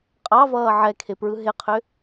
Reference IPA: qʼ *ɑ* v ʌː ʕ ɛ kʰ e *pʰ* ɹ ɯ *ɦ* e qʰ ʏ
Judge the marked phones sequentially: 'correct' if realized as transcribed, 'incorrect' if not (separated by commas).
correct, incorrect, correct